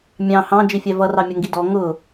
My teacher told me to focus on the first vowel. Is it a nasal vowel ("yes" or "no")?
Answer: yes